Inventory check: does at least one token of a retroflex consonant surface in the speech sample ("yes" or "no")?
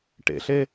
yes